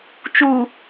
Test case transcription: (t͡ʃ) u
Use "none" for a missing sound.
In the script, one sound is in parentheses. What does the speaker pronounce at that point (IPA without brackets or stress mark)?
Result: t͡ʃ